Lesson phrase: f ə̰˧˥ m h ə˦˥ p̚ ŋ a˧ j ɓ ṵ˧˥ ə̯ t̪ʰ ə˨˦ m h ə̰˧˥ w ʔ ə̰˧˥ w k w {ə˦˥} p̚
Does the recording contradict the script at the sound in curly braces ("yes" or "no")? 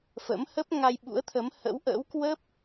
no